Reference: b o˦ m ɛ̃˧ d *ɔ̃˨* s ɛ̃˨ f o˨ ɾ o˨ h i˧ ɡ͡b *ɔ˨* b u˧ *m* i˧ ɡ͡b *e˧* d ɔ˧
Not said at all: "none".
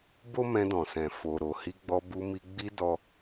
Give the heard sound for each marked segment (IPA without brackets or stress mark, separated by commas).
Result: ɔ̃˨, ɔ˧, m, i˧